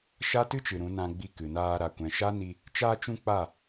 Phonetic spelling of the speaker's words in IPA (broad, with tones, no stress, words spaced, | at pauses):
ʃa˦tɨ˦t͡ʃɨ˨ ɾũ˨˦nã˧ ɡ͡bi˧ kɨ˨naː˧ ɾa˨kʷɛ̃˨ʃa˦ni˧ | t͡ʃaː˧t͡ʃũ˧ k͡pa˦˨